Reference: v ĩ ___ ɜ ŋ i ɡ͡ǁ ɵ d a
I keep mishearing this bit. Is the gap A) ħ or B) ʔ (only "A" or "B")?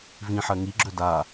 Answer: A